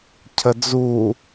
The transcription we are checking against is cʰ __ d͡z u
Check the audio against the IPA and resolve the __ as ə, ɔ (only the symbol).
ə